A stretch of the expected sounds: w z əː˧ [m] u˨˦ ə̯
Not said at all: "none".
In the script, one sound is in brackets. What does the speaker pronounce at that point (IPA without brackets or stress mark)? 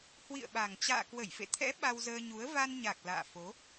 ɲ